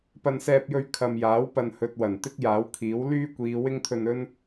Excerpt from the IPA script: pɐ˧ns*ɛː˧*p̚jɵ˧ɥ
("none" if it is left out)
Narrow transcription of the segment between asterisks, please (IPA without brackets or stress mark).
ɛː˧